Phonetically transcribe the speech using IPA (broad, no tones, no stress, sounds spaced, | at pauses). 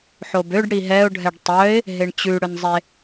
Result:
ħ o b ø ɖ ɽ i ɦ ɛ ʊ̯ ɖʱ ɛ ɖ tˤ œ ɪ̯ | ɦ e ɳ t͡ɕ ʉ ɽ ɵ n zˤ e